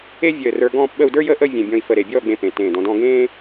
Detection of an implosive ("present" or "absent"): present